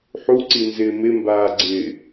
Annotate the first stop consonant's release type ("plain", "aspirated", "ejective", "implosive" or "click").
click